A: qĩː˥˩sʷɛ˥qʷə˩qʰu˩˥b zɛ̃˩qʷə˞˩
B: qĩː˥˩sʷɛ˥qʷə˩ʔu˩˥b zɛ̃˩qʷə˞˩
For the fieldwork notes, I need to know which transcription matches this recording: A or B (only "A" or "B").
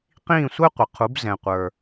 A